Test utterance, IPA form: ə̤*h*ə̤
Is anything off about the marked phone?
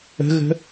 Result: yes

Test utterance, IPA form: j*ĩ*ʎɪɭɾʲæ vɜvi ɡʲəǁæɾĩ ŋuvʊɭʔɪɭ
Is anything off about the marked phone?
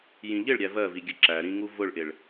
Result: no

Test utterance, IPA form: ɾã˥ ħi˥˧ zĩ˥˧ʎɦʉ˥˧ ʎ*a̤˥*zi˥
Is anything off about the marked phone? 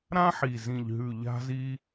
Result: no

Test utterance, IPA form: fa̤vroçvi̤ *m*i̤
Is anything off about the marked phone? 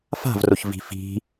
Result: yes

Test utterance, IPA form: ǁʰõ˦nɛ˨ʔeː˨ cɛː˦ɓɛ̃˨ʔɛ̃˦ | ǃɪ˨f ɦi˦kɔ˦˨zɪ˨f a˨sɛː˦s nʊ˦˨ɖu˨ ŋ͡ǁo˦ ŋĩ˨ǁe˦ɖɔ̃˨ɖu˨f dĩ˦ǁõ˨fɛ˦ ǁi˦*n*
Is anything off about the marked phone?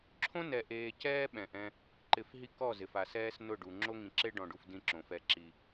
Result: yes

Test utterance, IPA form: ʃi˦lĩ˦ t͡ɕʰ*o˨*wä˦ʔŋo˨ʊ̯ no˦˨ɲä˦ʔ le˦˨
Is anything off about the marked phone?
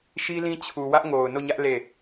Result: yes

